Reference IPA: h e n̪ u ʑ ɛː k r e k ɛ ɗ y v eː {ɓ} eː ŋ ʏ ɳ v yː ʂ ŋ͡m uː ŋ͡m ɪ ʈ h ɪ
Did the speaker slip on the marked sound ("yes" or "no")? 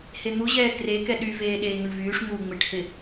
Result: yes